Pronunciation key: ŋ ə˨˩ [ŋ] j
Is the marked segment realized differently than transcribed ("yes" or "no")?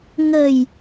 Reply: yes